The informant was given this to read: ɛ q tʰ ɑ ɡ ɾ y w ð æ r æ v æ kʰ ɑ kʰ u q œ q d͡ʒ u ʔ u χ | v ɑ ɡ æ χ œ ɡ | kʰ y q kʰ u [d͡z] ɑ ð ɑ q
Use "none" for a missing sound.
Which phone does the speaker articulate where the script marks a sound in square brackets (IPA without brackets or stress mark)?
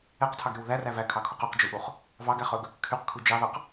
d͡ʒ